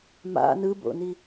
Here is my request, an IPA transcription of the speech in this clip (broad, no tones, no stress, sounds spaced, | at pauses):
m a̰ n ɯ b o̰ n i